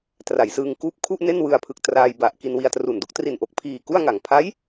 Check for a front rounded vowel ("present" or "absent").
absent